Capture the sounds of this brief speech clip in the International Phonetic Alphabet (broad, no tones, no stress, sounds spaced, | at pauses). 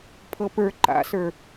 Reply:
pʰ ɤ p ə˞ ǃ a̰ s ə˞